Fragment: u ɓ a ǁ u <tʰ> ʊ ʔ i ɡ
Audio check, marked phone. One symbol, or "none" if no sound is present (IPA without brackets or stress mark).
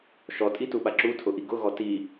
tʰ